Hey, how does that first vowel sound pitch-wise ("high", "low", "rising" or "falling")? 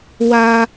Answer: high